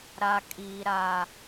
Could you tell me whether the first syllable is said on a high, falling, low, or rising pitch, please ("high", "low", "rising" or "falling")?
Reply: low